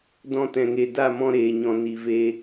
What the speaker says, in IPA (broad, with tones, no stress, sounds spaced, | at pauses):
d ɔ̃˧ t ɛ̃˨ ŋ e˨ d a˦˨ m ɔ̃˧ ɾ eː˨ ɲ ɔ̃˨ n i˨ v e˧